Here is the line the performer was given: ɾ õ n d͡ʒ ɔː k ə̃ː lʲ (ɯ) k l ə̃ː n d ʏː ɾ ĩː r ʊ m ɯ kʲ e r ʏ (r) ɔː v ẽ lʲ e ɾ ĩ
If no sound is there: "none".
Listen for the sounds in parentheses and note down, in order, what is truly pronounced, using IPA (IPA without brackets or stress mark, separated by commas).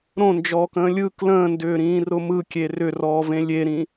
ɯ, r